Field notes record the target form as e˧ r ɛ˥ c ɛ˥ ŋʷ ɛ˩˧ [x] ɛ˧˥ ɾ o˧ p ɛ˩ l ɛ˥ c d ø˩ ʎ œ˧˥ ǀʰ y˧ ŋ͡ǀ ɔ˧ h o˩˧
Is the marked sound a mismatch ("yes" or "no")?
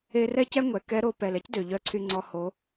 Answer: yes